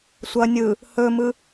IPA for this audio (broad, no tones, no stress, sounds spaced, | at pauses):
sʷ ʌ nʲ ɯ | h ɵ m ɯ